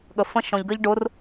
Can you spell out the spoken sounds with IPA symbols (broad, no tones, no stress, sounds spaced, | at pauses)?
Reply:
ɠ ə f ə̃ ʃ ɔ̃ ʎ ɡ ɜ ʎ ɖ ʊ r